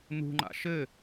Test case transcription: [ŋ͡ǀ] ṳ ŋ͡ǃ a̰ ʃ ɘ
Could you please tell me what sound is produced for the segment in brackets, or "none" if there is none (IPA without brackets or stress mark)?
n